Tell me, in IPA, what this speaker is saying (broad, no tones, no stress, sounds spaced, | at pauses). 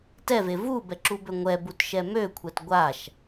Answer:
t ɛ v e v u b ɛ ǁ u b ø ŋʷ ɛ b u t ʃ ɛ m ø kʷʰ ɛ t ɡʷ a ʃ